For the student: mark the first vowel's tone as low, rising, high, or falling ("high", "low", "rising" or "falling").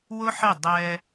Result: high